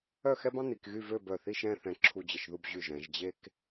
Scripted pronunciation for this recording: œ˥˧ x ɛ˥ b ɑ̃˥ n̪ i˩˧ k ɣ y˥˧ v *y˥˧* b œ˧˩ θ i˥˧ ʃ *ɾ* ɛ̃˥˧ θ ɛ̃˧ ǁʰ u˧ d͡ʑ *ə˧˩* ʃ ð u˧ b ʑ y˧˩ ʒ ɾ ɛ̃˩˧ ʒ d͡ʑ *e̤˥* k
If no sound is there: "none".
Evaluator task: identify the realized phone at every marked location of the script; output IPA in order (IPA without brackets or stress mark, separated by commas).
ø˥˧, ɾ, ə˧˩, e˥